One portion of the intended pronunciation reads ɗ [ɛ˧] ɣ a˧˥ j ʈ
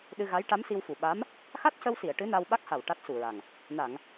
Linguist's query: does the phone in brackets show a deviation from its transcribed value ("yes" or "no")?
yes